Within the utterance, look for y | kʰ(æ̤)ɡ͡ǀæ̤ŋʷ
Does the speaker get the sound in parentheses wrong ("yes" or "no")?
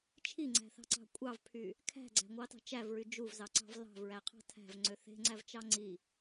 no